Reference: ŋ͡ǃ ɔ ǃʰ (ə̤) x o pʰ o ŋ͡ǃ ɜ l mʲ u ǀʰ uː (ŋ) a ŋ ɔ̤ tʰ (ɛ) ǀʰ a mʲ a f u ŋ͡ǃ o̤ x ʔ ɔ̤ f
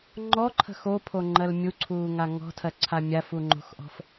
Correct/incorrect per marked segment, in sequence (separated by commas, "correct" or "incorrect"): correct, correct, incorrect